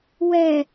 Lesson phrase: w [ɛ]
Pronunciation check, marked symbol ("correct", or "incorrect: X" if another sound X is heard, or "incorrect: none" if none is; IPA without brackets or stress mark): correct